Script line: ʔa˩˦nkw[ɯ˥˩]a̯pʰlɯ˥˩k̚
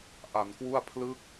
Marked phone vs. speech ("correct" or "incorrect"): incorrect